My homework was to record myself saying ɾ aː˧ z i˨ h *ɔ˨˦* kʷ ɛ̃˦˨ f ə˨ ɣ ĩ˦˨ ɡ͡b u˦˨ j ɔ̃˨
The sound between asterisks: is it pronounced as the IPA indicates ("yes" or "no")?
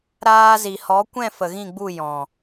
yes